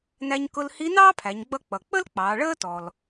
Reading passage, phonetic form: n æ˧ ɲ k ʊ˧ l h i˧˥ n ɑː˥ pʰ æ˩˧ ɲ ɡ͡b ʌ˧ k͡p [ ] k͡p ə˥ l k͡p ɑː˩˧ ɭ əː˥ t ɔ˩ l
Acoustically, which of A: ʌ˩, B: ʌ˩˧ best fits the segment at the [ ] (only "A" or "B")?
A